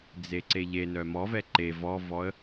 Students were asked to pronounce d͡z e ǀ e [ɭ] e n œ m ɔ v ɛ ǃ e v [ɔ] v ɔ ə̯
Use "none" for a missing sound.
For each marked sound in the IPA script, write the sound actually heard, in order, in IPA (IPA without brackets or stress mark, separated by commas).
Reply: ʎ, ɔ